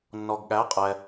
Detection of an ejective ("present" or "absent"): present